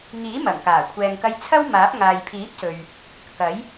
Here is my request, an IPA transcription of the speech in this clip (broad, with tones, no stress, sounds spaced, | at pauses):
ŋ iː˨˥ m ɐ˨˩ ŋ k aː˨˩ kʷʰ ɛː˨ ŋ k ɐ˧ j t͡sʰ ɐ˥ w m aː˨˥ p̚ ŋ aː˨ j pʰ iː˨˥ p̚ s ɵ˨ ɥ | k ɐ˨˥ j